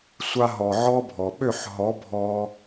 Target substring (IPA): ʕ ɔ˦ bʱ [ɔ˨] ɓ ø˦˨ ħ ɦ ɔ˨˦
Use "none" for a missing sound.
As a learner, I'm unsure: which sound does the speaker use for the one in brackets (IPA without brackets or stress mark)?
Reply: ɔ˨